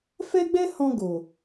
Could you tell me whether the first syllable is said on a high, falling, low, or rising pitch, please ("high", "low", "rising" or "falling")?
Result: high